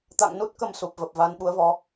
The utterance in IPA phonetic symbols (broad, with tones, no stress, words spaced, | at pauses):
t̪a̰˧˨ŋnu˦˥t̚kə˨˩m su˨˩p̚və˨˩p̚ va˨˦n ɓu˨˦ə̯vɔ˨˦